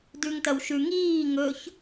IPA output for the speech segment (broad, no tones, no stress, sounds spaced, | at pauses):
d ʉ ŋ t ɐ w ʃ ʉ ŋ iː ŋ ɵ ç